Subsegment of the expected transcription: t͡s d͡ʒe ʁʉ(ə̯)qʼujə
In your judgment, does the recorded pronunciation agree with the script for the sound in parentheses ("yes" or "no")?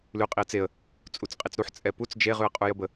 yes